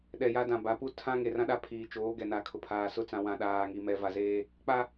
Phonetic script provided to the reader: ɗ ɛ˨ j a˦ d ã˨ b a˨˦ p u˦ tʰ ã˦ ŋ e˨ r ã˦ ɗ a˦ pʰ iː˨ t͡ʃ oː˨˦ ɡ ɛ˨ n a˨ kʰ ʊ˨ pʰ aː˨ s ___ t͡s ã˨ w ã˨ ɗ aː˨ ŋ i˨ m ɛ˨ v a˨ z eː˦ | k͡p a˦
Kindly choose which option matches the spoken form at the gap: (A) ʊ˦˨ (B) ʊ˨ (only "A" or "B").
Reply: A